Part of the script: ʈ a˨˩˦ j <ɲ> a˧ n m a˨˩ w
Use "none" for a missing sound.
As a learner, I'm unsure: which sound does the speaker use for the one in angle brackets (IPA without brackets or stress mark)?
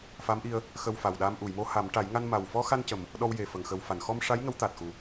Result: ŋ